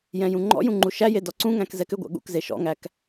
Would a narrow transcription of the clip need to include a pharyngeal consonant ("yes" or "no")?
no